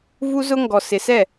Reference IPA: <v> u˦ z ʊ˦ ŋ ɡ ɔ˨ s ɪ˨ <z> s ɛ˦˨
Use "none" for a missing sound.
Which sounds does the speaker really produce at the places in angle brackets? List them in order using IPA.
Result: v, none

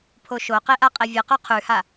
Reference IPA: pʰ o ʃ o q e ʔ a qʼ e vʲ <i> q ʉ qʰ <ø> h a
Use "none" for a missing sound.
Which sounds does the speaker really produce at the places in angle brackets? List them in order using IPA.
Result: ɨ, ʉ

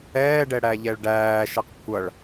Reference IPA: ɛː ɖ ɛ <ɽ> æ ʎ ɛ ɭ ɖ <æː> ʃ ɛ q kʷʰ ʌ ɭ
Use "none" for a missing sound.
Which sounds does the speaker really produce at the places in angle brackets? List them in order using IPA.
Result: ɽ, æː

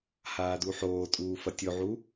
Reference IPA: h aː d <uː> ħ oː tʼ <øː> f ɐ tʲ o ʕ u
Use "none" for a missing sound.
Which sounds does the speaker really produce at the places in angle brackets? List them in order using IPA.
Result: u, uː

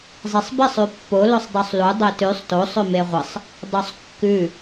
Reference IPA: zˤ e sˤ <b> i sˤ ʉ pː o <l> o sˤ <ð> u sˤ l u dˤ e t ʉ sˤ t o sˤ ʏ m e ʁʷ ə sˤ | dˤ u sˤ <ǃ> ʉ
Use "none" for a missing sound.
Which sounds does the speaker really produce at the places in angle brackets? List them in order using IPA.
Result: b, l, dˤ, kː

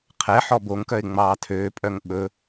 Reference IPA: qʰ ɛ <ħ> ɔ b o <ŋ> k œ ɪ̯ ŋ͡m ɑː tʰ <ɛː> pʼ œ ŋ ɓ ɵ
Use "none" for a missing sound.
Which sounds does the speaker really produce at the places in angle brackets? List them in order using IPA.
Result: ħ, ŋ, øː

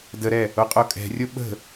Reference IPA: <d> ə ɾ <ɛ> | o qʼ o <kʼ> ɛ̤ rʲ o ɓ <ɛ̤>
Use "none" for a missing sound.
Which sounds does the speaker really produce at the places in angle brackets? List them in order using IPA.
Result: d, ɛ, kʼ, ə̤

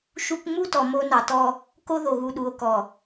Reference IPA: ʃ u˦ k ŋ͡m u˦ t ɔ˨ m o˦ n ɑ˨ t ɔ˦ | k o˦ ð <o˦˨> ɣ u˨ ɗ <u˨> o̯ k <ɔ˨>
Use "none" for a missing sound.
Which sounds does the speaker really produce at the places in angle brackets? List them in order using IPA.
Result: o˨, u˨, ɔ˨

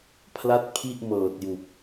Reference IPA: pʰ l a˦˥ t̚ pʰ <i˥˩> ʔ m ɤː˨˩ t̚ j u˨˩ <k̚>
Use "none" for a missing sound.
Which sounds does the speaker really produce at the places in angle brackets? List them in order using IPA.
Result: i˥˩, k̚

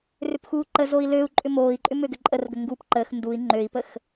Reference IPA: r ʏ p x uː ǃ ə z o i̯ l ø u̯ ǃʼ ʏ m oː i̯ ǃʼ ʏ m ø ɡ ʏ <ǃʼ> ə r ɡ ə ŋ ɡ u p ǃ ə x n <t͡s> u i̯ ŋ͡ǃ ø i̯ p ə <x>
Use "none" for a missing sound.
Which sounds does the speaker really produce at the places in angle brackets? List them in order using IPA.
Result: ǃʼ, d, x

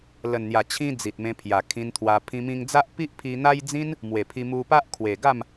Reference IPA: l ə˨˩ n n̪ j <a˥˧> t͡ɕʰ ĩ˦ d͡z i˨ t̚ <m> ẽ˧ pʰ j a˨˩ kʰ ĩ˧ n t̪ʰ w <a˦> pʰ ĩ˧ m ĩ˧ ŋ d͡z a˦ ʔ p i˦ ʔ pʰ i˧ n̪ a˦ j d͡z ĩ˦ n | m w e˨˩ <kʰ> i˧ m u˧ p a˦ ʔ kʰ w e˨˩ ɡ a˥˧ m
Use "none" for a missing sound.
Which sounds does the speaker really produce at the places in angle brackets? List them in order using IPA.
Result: a˨˩, m, a˧, pʰ

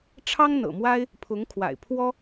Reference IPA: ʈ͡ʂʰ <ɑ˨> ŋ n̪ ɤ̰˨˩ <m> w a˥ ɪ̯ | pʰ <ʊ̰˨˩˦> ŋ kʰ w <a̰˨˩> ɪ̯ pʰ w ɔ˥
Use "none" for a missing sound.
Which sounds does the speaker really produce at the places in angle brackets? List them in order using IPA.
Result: ɑ˥, m, ʊ˧˥, a̰˨˩

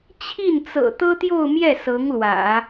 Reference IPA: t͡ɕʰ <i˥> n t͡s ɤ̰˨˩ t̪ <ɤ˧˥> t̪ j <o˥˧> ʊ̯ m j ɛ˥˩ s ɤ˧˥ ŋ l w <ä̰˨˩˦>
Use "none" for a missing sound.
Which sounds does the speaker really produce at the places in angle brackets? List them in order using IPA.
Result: i˥˩, ɤ˥, o˥˧, ä̰˨˩˦

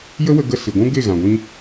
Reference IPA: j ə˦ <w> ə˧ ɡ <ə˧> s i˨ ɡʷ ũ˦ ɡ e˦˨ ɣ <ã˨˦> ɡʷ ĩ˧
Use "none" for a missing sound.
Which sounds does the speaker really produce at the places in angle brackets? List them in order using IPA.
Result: w, ə˧, ã˨

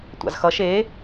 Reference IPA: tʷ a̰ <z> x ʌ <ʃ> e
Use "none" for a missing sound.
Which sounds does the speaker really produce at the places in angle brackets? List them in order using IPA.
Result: z, ʃ

